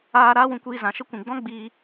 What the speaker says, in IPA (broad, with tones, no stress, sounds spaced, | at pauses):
aː˧ ɾ aː˦ w ũ˧ kʷ iː˧ z ã˨ ʃ ə˦ kʷ ĩ˨ ɡ͡b ɔ̃˦ ɡ͡b iː˧